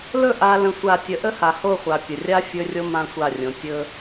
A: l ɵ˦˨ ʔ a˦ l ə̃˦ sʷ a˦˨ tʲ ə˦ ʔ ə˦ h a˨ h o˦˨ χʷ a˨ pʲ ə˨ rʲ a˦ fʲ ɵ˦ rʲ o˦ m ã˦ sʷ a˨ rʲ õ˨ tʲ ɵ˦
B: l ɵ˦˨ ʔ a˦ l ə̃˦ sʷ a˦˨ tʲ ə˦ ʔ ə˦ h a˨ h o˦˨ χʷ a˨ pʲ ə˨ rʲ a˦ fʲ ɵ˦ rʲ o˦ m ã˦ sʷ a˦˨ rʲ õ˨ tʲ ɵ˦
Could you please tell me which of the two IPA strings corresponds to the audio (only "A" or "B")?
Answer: B